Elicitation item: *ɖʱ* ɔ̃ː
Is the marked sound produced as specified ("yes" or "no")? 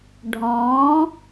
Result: yes